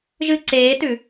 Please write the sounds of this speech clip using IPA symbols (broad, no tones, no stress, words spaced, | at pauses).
ʒɨ ǀeːtʉ